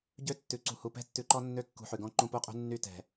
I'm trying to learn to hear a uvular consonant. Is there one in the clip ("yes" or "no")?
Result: yes